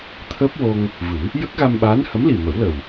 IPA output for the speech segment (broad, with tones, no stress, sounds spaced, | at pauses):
t̪ʰ əː˦˥ p̚ w o˧ ŋ | v ɨ˨˩˦ | j ə˦˥ k̚ ɣ a˧ m ɓ aː˧˥ n h ə˧˥ m l i˨˩ m ə˨˩˦ w l ə˨˩ w